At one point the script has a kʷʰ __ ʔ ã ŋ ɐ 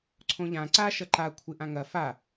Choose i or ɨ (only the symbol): ɨ